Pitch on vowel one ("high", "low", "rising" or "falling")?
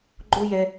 high